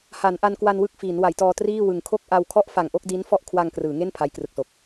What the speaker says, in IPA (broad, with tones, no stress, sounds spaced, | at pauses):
h a˩˦ n ʔ a˧ n k w a˧ n w ɯ˥˩ k̚ f iː˩˦ n w a˩˦ j t ɔː˧ t r iː˥˩ w ɯ˨˩ ŋ kʰ o˥˩ k̚ ʔ a˧ w kʰ ɔ˥˩ ʔ f a˨˩ ŋ ʔ o˥˩ k̚ d i˦˥ n f ɔ˥˩ ʔ kʰ w a˧ ŋ k r ɯː˩˦ ŋ e˥˩ n pʰ a˦˥ j k r ɯ˨˩ k̚ s o˨˩ k̚